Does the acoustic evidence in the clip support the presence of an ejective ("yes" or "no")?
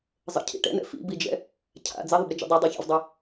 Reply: no